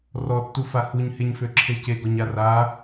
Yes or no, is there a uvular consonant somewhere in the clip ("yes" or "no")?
no